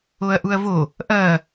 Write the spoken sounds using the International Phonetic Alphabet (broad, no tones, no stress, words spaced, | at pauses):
oɐ̯ʔuɐ̯vo | ʔɐ